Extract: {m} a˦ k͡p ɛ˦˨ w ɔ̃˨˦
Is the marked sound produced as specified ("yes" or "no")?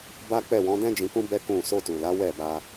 no